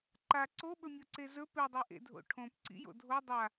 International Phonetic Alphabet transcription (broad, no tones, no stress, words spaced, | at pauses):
ǃa ǀoɓɵmʲoǀe zɵ pedˤe ʔḛdʱo̰ʈʰõpǀḭ jo̰dʱo dˤa